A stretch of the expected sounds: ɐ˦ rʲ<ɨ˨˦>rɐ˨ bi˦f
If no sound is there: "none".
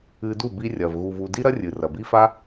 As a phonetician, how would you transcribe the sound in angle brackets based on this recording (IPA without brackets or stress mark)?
ɨ˨